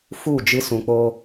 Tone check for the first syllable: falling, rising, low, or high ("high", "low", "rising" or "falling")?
falling